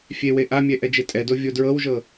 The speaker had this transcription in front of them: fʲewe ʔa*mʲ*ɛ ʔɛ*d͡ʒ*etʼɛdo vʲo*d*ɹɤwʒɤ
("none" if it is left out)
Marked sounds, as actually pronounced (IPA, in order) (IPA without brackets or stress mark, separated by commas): mʲ, d͡ʒ, d